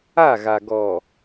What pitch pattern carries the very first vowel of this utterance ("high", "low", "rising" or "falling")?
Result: falling